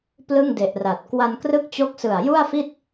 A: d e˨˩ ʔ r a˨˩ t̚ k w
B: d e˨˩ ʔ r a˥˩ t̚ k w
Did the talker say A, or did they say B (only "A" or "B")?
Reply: A